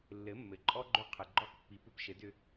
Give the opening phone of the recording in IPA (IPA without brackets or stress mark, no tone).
lː